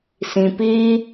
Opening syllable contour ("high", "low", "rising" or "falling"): low